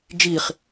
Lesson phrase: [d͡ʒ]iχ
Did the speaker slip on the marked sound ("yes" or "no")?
no